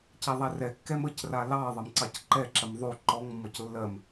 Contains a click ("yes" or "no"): yes